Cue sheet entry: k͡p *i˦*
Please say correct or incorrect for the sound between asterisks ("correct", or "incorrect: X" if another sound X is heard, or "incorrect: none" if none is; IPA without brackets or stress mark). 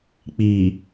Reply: incorrect: i˨